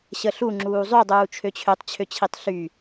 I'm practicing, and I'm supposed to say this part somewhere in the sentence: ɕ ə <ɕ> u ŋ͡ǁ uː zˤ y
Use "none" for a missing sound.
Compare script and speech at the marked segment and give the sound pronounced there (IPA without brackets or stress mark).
ɬ